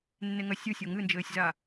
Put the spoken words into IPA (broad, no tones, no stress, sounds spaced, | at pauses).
nː e ŋ ɐ sʲ u sʲ o ŋ ɨ n d͡ʒ ɘː sʲ z a